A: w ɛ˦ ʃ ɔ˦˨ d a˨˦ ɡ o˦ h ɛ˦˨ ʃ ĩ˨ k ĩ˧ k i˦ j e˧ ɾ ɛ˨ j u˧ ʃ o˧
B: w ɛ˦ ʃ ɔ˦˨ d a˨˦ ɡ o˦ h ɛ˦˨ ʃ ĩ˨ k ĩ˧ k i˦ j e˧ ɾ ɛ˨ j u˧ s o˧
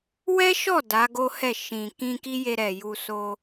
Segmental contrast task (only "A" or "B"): B